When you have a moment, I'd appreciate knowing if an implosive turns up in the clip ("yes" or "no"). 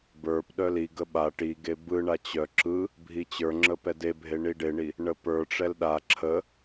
yes